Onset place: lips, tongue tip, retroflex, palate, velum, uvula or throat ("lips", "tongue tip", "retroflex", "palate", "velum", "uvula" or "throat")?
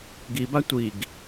velum